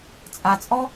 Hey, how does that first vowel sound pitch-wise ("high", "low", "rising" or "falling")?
low